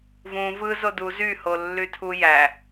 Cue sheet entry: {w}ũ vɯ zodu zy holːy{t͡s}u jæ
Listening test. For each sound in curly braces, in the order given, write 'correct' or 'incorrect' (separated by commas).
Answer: incorrect, incorrect